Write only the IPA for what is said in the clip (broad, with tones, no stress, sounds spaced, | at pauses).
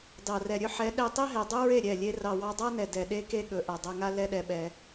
d ɑ˨ r ɛ˨ ɾʲ ɵ˦ ħ ɛ˨˦ ɗ ɛ˧ tˤ e˦ ɦ ɛ˨ dˤ ɵ˦ ɹ e˦˨ ɾʲ ɛ˦˨ lʲ e˦ r ɑ˨ w ɑ˧ dˤ a˦ n ɛ˨ d ɛ˨ ɗ e˦ k e˦ ɠ ɵ˨ ʔ a˨ dˤ a˧ ŋ a˦ l ɛ˦ ɗ ɛ˧ ɓ ɛ˧